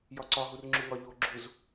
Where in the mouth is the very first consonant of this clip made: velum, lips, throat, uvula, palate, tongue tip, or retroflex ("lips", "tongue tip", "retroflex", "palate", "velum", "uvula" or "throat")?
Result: palate